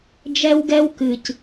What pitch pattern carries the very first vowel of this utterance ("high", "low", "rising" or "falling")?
high